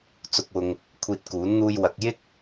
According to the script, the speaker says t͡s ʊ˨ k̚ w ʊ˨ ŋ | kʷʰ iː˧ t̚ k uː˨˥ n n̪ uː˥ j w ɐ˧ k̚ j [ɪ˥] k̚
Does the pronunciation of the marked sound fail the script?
no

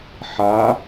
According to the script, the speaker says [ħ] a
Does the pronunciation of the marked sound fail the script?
no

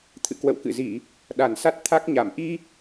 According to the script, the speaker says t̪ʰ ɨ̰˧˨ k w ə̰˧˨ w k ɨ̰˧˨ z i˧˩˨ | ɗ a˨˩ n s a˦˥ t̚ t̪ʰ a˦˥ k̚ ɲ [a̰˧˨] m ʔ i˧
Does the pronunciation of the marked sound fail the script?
yes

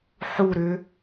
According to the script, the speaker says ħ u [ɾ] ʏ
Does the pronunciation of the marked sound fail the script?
no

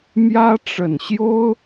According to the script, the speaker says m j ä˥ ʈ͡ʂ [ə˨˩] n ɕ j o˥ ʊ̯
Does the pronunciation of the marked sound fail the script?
no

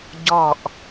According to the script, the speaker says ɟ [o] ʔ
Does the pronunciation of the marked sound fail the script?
yes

